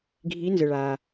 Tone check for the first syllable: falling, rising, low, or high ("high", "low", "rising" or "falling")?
rising